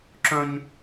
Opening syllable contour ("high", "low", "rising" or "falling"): low